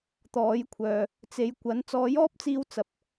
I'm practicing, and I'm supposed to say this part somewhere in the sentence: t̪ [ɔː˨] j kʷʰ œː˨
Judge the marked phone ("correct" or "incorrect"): incorrect